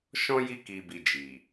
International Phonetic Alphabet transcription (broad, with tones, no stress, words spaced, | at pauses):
ʃɔ̃˧ ji˧ki˨bi˨ d͡ʒi˨